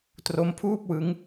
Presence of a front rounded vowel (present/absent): absent